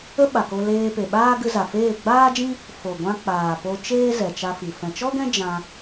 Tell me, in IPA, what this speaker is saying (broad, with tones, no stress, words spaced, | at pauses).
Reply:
ə˦ɓa˨ko˧ leː˧pe˨ɓaː˦ ɡɨ˧za˨feː˦˨ ɡ͡baː˦d͡ʒĩ˦ | fo˨ɡʷã˧ k͡paː˨po˧ t͡ʃeː˦ zɛ˨t͡ʃa˧fi˨ fɛ̃˨t͡ʃɔ˦ɡɛ̃˦ d͡ʒã˧